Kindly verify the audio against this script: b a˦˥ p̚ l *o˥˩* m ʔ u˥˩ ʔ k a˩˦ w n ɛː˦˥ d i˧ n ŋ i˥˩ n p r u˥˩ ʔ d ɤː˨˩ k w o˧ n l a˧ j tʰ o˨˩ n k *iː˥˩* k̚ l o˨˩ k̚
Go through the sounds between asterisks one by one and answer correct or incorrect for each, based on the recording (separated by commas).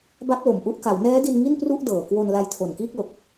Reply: incorrect, correct